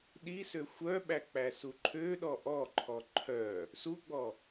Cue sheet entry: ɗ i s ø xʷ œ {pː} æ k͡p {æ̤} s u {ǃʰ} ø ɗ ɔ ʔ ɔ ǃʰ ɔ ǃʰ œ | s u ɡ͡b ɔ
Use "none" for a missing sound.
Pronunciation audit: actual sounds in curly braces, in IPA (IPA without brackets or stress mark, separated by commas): ɓ, æ, ǃʰ